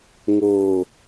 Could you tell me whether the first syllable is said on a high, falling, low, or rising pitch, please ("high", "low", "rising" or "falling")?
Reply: falling